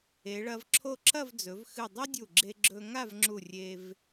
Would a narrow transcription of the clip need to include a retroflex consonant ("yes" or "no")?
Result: yes